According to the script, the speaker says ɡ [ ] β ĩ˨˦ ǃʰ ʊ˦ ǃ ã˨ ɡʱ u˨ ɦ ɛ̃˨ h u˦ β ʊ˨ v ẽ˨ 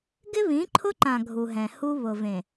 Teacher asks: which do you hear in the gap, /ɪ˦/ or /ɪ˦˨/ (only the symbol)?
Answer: ɪ˦